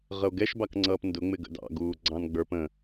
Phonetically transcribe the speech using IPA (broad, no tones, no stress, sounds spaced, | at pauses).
ʁ ə o̯ ɡ ɛ ʃ b ɑ k ŋ͡ǀ ʌː p n d ʊ ŋ͡m ɪ ɡ ə̰ d ɑ̰ ɡ uː ɡ͡ǀ ɑ̃ n ɡ͡b ə˞ p ə̃